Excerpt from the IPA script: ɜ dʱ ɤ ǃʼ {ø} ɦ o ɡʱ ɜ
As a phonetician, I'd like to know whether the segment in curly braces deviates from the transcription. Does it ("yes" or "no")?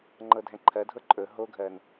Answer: yes